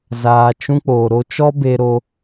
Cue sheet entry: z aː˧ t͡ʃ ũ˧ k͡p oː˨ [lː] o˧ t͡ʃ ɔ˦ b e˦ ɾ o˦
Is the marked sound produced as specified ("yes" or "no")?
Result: no